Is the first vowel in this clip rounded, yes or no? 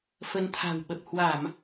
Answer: no